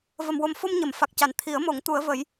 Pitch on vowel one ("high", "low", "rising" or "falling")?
low